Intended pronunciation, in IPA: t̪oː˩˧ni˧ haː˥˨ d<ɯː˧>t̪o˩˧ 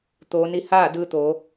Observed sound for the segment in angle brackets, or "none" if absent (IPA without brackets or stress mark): ɯː˧